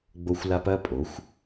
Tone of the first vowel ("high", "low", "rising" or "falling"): high